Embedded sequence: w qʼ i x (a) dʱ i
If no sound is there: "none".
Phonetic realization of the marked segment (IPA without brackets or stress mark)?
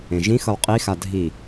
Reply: a